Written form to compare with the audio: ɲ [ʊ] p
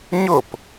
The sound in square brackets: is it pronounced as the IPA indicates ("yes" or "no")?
yes